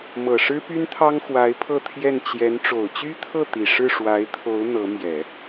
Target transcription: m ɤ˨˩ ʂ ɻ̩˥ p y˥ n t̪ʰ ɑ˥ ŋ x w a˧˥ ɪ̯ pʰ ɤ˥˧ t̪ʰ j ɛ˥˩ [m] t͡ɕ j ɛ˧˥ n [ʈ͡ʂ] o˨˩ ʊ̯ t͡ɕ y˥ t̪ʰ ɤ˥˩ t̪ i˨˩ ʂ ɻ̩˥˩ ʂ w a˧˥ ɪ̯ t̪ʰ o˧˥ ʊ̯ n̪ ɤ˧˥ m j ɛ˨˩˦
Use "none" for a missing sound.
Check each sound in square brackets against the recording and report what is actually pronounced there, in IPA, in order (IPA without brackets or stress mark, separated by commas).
n, ʈ͡ʂ